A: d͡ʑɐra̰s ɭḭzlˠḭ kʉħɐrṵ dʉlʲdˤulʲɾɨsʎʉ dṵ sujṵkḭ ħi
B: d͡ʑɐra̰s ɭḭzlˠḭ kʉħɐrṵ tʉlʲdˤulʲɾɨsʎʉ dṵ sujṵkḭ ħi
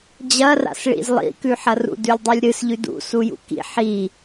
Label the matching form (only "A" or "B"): A